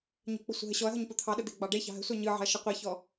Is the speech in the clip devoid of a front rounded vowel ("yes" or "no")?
yes